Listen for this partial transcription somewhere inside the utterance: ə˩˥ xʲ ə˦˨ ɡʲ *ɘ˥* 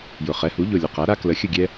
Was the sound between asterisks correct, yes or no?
no